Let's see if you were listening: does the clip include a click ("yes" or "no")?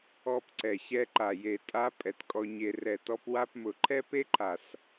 yes